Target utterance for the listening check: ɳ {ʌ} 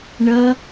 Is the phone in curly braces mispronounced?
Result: no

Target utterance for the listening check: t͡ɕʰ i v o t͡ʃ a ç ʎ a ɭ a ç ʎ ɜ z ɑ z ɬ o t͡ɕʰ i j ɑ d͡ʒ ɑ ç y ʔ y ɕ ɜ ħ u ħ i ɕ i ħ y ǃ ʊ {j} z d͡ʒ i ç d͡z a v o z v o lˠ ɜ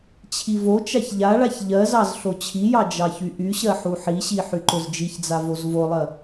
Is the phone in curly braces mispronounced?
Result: yes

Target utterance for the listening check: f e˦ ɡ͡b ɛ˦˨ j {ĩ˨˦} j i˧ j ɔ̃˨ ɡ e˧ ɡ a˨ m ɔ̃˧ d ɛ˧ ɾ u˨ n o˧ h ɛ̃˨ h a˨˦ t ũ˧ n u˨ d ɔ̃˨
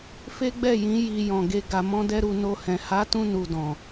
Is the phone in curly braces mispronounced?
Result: no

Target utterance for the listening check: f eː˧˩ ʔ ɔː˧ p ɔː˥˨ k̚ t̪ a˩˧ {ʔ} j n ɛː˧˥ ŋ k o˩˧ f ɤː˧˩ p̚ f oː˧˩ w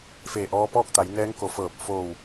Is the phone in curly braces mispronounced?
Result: yes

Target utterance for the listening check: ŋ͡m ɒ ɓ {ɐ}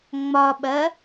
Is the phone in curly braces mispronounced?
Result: no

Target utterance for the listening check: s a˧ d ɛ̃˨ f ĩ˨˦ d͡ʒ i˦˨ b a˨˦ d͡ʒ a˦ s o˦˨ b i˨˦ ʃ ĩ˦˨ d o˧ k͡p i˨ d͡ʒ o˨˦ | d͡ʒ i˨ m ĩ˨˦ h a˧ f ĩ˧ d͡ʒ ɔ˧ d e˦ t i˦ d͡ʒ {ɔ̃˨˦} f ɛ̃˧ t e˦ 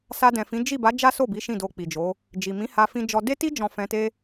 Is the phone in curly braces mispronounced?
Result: yes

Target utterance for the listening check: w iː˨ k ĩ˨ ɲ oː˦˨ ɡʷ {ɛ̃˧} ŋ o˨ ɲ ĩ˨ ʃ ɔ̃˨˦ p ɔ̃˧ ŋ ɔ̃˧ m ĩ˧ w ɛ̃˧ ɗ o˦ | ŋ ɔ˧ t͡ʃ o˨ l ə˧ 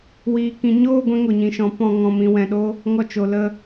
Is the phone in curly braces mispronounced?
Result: yes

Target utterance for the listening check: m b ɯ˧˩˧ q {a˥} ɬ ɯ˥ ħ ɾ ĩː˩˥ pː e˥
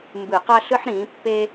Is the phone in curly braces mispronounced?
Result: no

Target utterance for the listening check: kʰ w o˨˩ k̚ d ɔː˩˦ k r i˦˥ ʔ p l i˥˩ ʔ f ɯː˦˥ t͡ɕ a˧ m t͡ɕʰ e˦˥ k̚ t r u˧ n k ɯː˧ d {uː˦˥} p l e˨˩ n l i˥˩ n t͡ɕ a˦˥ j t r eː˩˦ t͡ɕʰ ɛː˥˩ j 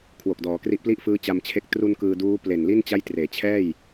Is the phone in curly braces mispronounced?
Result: no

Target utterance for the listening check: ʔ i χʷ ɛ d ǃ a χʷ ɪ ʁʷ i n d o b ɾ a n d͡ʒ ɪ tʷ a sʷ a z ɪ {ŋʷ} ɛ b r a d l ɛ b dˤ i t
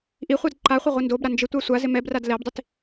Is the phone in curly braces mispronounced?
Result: yes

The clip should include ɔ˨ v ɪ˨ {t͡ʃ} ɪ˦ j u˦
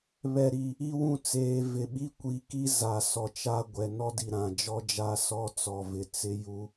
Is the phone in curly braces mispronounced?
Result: yes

